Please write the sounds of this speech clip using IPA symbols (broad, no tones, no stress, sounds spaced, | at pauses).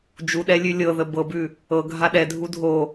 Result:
d͡ʒ u ɗ ɛ lʲ ʉ lʲ ɤ ð ə b ɤ b ʉ | ɤ ɡʱ a ɗ ɛ dʱ u dʱ o